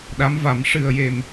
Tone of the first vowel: rising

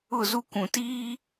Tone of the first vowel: falling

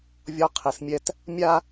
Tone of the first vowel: high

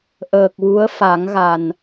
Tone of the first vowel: low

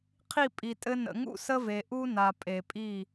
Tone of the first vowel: falling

